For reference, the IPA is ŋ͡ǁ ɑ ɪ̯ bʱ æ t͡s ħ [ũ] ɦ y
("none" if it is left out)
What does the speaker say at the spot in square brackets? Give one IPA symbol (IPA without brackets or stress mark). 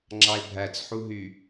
u